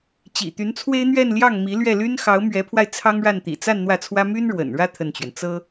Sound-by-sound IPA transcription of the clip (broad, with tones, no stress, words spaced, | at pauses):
t͡ɕḭ˨˩t̪y˧˥nt͡sʰwe˥ɪ̯n̪ɥɛ˥˧n ljɑ˥˩ŋmi˧˥ lɥɛ˥˩ly˥n xɑ˧˥ʊ̯mɥɛ˧˥pʰwa˧ɪ̯ t͡sʰɑ˥ŋɻa˥˩n t̪ḭ˨˩t͡sa˥˧n n̪wä˥˩t͡sʰwä˥ my˥nɻwə̰˨˩nɻä˥˧ t̪ʰə˥˩nt͡ɕɥɛ˩n t͡sɤ˥